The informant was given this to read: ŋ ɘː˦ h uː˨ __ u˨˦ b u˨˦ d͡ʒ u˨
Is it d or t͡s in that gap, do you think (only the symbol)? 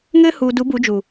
d